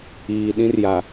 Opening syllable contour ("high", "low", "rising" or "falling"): low